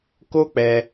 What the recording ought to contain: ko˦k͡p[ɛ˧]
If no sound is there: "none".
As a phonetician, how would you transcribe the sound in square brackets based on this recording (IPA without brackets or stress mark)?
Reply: ɛ˧